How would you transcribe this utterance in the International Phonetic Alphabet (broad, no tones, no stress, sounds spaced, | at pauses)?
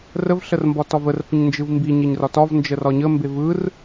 r ə v ɬ ə r m b ɒ t ɒ v ə r f ə ɲ n d͡ʒ ɯ v m b i ɲ e ɲ r ɒ t ɒ v n d͡ʒ ə r ɒ ɲ ə m b e v ɯ r